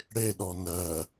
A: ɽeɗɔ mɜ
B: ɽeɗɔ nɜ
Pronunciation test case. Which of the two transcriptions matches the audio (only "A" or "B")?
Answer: B